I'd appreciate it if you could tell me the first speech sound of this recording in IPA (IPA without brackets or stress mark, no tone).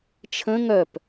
t͡ʃʰ